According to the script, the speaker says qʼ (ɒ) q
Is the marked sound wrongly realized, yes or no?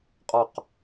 no